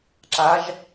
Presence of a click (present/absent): present